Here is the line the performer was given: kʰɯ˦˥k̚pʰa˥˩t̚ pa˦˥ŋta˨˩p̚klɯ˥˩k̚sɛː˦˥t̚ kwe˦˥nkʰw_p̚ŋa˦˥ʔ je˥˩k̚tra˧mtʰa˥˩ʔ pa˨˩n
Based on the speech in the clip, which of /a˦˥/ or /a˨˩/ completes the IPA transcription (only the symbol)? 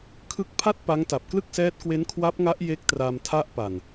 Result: a˦˥